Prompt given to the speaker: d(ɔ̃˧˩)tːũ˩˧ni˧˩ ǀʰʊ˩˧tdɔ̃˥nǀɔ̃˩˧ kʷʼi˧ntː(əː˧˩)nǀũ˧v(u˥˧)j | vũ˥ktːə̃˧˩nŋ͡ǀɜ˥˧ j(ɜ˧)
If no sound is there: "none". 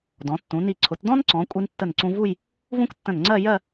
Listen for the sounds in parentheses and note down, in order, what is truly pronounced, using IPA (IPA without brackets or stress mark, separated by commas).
ɔ̃˩˧, ə˧˩, u˥˧, ɜ˥˧